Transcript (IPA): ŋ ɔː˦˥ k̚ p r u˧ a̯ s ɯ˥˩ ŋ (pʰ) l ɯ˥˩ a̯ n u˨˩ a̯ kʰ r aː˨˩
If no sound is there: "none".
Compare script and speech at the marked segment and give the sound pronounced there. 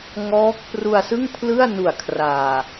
pʰ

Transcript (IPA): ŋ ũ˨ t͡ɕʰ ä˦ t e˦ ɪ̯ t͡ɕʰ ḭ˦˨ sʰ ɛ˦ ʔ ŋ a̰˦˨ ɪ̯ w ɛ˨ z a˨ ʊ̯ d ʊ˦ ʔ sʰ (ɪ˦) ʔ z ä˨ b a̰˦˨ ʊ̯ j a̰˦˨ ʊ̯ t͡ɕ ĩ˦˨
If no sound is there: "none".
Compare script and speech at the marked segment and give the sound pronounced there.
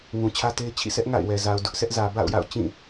ɛ˦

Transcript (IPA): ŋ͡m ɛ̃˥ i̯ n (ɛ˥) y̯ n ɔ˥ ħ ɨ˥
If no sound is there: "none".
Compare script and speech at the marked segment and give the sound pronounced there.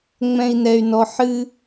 ɛ˥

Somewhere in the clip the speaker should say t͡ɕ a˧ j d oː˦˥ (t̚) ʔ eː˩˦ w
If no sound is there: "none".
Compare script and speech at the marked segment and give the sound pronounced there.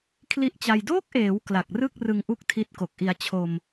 k̚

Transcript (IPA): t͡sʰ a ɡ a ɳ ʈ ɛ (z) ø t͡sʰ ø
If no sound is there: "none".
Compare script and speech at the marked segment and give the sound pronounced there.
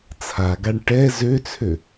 z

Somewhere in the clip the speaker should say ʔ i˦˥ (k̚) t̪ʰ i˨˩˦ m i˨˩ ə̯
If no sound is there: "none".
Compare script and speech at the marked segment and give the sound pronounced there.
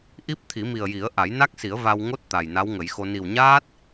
p̚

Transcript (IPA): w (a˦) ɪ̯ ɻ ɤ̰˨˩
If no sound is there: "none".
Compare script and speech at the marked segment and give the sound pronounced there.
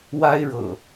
a˦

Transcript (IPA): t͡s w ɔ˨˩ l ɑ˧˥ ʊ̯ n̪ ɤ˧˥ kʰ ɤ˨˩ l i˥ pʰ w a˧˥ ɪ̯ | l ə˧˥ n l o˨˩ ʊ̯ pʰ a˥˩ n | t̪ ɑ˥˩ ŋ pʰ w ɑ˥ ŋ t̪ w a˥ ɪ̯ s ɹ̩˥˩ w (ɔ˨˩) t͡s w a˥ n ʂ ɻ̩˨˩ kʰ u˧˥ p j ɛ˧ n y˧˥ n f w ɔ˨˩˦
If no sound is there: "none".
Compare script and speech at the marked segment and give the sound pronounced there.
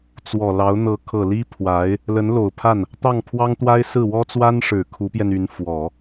ɔ˥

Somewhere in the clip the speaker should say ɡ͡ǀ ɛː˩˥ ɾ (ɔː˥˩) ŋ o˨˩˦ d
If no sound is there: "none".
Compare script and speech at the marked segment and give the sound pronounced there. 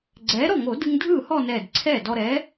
ɔ˥˩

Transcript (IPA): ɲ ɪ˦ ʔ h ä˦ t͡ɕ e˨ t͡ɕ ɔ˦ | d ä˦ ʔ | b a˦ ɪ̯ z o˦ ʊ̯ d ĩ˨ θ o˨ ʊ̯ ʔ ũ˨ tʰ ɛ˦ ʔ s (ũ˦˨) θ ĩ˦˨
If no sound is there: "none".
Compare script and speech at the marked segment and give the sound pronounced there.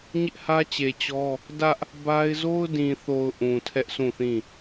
ũ˦˨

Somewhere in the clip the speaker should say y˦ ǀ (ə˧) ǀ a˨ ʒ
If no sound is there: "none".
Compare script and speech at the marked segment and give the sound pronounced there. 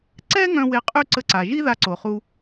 ə˧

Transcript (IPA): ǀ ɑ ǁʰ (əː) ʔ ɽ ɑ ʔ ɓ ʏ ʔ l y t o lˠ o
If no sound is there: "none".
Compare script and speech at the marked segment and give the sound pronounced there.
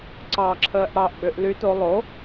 əː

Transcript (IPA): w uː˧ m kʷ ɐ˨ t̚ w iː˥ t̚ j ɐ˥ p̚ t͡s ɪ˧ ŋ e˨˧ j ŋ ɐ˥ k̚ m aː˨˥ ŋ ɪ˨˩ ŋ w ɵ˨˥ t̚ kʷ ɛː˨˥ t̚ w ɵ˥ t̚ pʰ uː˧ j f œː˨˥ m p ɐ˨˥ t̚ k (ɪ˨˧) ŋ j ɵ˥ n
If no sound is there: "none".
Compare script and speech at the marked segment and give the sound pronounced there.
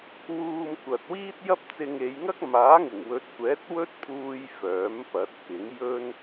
ɪ˨˥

